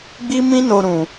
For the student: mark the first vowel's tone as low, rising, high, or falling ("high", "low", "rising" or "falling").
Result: high